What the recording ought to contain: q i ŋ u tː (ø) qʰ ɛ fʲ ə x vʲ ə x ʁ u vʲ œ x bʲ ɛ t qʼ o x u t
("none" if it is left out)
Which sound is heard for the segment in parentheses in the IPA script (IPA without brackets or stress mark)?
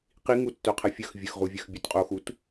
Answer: œ